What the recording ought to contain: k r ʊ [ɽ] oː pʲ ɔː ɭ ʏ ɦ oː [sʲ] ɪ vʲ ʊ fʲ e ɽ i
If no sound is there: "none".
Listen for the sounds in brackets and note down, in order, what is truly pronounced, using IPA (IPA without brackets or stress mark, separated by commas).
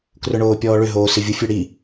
ɳ, s